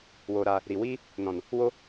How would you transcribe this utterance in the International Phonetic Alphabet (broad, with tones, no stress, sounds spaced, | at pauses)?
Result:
w oː˧ ɾ aː˧ | ɾ i˨ w iː˦ | n ɔ̃˨ n | w o˦